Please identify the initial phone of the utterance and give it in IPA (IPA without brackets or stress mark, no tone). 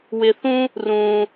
w